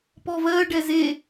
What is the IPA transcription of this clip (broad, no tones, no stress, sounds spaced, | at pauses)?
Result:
p ɔ v ɜ ɖ ɛ z e